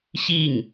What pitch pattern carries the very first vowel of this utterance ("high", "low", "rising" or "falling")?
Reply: falling